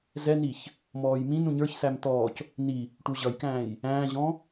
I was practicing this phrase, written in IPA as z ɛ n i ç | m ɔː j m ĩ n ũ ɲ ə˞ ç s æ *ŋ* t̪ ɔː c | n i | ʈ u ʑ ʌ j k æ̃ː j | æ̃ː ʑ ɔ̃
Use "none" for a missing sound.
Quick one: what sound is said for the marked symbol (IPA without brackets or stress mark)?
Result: m